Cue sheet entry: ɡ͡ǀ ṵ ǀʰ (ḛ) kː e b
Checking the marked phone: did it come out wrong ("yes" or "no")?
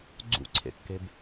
no